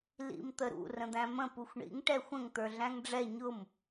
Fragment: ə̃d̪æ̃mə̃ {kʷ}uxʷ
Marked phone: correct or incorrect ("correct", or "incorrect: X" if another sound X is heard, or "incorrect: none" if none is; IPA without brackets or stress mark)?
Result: incorrect: p